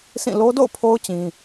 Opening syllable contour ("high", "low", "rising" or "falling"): falling